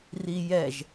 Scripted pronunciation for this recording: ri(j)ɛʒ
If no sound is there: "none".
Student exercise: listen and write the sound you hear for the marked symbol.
j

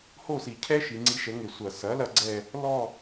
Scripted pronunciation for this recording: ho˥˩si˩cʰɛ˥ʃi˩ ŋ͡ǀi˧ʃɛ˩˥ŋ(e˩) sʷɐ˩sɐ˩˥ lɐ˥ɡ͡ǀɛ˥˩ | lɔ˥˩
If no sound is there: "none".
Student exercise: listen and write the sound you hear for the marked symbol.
e˩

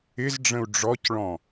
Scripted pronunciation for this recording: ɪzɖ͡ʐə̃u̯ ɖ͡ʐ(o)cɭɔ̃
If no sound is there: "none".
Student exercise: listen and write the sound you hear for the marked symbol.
ɔ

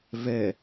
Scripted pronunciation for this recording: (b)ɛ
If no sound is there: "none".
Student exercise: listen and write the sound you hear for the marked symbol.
v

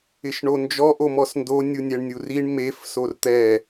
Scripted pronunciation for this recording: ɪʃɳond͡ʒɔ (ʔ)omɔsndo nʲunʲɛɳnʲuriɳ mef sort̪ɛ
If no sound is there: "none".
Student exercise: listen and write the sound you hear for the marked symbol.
ʔ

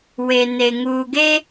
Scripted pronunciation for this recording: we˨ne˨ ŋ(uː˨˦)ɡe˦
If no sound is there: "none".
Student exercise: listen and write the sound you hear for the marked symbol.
uː˨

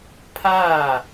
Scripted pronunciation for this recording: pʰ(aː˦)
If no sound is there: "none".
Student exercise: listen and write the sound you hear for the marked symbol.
aː˦˨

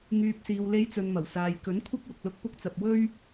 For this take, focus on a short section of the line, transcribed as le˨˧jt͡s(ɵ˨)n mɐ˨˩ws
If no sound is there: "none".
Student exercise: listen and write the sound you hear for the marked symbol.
ɵ˨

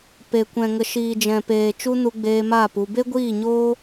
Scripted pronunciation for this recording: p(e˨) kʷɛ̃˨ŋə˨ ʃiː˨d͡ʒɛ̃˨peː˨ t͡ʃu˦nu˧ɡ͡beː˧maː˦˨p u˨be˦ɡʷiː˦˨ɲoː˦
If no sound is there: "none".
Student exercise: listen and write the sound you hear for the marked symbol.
e˨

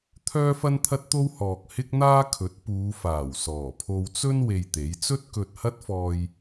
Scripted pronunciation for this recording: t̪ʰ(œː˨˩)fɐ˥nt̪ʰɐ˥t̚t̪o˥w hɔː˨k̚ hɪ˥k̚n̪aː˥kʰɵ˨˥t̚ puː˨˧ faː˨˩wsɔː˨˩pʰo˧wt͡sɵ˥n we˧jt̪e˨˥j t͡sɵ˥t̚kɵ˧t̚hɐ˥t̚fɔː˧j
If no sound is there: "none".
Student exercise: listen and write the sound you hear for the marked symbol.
œː˥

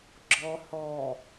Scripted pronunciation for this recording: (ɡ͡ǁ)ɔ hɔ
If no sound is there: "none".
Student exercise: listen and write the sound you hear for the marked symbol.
ɡ͡ǁ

